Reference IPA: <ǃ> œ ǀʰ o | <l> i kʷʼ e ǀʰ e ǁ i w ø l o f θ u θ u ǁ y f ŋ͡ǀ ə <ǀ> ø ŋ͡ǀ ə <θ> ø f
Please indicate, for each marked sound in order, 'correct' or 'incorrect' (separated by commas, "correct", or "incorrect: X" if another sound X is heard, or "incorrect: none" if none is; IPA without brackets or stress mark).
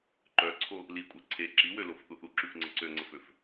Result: correct, correct, correct, incorrect: f